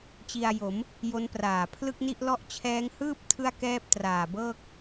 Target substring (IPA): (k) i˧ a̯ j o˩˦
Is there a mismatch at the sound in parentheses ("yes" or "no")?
yes